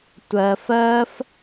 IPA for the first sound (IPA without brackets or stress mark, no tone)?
tʷ